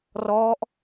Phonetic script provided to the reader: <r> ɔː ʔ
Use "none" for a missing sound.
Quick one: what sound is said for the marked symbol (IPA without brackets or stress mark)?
r